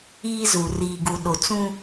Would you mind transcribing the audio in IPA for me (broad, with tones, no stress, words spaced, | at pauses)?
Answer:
iː˦zu˨ riː˨ɡu˨ ɗo˨t͡sũ˦